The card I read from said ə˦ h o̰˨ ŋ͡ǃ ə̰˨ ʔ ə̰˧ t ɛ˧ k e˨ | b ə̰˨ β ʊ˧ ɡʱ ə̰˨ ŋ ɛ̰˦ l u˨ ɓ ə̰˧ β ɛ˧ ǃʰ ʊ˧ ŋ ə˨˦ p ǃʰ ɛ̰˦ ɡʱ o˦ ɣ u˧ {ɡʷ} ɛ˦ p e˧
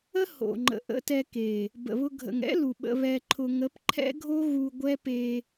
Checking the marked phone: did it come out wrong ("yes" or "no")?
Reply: no